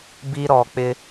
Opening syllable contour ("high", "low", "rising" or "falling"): high